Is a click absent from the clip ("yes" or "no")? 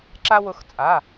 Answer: no